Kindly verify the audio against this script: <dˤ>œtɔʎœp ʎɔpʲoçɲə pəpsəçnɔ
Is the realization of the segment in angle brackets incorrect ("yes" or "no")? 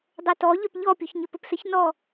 no